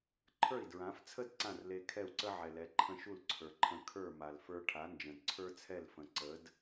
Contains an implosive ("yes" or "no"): no